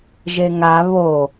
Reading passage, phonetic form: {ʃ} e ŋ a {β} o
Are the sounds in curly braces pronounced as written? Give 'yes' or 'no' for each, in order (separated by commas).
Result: no, yes